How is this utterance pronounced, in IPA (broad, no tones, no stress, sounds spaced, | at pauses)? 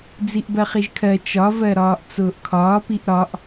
d͡z i ʔ b ɜ χ i ʒ kʰ ɜ t͡ʃ ɒ v ɜ ɾ ɒː ʔ t͡s ʊː ʔ kʰ ɒː p i ʔ ɾ ɒ ʔ